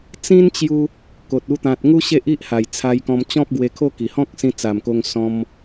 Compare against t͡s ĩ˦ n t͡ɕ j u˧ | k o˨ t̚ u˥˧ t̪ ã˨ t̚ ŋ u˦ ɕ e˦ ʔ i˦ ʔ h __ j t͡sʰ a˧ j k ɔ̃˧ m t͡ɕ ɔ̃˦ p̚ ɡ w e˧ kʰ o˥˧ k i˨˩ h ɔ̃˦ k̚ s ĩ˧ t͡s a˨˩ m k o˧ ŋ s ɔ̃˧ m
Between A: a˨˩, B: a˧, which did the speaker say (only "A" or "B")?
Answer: A